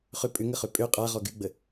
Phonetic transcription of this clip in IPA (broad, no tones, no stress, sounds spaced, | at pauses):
χ ʏ pʼ ʏ ŋ ə χ ø pʼ ø qʼ a ʁ ɔ ɡ y ɡ͡b ə